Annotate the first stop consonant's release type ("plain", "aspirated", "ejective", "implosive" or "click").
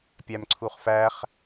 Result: plain